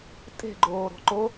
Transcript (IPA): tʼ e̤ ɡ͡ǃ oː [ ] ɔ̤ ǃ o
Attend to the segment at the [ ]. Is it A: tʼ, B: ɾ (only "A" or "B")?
B